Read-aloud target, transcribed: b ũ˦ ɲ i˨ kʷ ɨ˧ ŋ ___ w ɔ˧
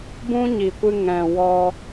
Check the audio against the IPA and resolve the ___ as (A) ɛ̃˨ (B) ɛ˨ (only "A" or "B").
A